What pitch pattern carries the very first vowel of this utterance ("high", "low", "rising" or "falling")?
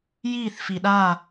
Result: falling